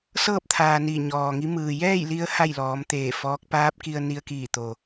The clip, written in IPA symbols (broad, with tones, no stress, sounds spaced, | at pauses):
s ɤː˥˨ p̚ t̪ʰ aː˩ n i˧˩ ɲ ɔː˩ ŋ i˧˥ m ɯː˩ j ɛː˥˨ j l i˧ ə̯ h a˥˨ j l ɔː˩˧ m t̪ eː˧˩ f ɔː˧˥ k̚ p aː˧˥ p̚ k i˧ ə̯ n i˧ ə̯ k iː˧˩ t̪ o˩